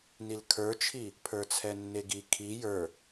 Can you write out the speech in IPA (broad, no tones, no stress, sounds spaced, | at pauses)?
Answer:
n i l kʰ ə˞ t͡ʃʰ i | pʰ ə˞ t͡sʰ ɛ nː e ɡ i kʰ i j ə˞